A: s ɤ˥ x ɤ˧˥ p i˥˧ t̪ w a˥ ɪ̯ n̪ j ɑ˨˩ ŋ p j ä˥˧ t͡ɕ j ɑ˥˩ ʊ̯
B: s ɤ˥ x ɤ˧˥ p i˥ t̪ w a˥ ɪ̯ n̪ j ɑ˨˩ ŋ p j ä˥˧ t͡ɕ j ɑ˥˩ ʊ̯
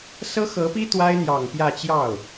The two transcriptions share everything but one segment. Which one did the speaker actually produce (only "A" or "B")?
B